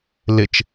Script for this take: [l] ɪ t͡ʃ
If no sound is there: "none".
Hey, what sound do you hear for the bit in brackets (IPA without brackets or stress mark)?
l